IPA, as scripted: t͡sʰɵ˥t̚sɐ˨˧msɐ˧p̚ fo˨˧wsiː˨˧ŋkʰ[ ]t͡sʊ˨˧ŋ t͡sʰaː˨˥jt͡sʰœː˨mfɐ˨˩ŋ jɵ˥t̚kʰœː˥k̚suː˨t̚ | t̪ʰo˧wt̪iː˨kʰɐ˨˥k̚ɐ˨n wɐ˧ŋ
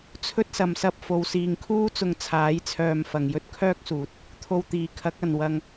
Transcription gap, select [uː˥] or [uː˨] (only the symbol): uː˥